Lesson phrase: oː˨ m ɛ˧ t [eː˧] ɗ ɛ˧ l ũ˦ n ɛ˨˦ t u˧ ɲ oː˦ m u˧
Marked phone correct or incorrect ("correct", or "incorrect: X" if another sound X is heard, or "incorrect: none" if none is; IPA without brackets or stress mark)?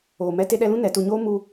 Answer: incorrect: e˧